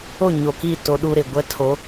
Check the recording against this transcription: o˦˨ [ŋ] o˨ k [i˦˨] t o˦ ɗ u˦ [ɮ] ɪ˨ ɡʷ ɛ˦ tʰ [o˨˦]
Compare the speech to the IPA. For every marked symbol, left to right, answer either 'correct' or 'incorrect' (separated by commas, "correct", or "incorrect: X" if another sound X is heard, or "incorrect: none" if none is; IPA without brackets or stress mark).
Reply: incorrect: ɲ, correct, incorrect: ɾ, correct